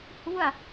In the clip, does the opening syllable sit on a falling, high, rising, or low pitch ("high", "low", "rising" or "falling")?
falling